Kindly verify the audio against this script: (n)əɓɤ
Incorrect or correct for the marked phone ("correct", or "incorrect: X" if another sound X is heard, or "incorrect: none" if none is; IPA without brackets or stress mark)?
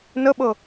correct